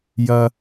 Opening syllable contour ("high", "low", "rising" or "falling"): low